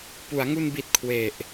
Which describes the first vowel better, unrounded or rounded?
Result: rounded